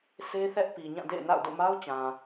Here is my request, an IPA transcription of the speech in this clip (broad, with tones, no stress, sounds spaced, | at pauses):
sʰ e˦ θ ɛ˦ ʔ p i˨ ɲ ã˦˨ d ḛ˦˨ ɪ̯ n a̰˦˨ ʊ̯ d o̰˦˨ m a˦ ʊ̯ t͡ɕ ã˨